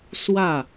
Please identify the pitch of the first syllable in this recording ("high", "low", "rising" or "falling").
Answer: falling